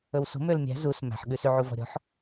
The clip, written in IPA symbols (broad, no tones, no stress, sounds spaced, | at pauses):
ɵ w s o̤ m ø l mʲ æ̤ z u s m æ̤ ħ ɠ ʉ s y ʕ u v ɔ̤ ɾʲ ɔ̤ ħ